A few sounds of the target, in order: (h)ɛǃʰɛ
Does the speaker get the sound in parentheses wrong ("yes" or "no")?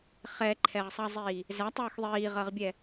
yes